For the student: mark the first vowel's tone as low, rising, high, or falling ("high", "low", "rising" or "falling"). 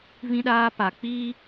high